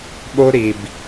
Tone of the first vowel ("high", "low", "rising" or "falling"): high